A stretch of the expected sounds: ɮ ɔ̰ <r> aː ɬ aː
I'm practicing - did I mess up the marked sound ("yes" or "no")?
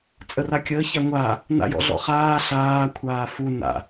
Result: yes